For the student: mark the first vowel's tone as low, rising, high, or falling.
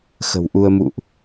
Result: low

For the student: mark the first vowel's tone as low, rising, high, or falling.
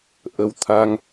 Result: rising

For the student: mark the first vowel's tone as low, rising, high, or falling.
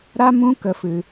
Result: high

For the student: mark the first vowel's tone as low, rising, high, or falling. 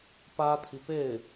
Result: high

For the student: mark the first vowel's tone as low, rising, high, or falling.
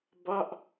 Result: falling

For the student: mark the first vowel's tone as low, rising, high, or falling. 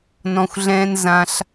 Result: low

